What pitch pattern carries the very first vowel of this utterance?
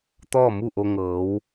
falling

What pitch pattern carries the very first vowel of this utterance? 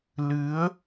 rising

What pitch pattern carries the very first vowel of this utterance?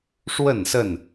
falling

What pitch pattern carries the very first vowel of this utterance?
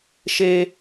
high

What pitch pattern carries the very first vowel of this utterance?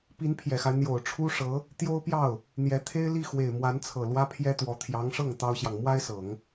rising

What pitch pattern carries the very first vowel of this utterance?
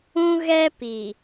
high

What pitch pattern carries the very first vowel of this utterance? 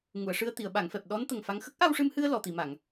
low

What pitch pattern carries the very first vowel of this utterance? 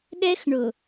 high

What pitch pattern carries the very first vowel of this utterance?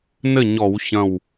falling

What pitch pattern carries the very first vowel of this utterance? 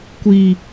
low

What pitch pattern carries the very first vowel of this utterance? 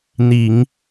low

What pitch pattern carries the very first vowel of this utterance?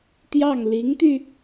falling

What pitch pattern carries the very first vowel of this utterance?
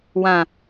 low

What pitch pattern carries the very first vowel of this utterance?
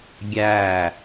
falling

